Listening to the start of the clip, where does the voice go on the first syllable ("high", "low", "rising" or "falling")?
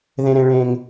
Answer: high